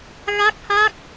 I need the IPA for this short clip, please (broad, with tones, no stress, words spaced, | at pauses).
ɣa˦˥k̚ha˦˥k̚